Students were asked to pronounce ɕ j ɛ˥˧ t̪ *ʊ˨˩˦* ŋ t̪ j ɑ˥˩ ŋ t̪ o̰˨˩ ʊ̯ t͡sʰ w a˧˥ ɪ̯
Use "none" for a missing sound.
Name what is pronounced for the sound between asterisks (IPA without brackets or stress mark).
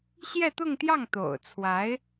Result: ʊ˥˧